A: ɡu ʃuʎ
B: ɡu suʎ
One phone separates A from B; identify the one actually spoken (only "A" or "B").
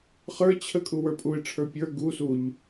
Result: B